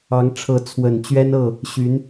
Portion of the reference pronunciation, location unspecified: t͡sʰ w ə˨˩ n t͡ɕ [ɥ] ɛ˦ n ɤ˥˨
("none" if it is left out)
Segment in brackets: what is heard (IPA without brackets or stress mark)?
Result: ɥ